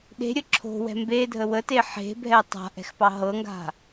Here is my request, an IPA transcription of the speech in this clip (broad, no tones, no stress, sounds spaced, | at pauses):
ɗ e̤ ɾʲ ə ǁʰ o̤ w ɛ̤ m b e dʱ ə w ə t e ħ e̤ bʱ ɛ tˤ a̤ ʔ ɛ̤ x p ɑ ɦ ɤ ŋ ɡ a̤